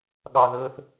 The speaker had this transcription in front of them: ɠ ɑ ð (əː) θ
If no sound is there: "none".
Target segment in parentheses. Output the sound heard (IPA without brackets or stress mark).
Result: əː